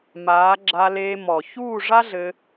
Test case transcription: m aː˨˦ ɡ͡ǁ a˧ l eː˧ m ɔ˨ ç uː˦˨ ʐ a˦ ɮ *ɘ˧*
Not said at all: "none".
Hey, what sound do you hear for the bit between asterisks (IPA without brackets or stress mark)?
ɘ˧